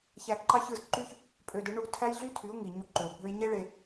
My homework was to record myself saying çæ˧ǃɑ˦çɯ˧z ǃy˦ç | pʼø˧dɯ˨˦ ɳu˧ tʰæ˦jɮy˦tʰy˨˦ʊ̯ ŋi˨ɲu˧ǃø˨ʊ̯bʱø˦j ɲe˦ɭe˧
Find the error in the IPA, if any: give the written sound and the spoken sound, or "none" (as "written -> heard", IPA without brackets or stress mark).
none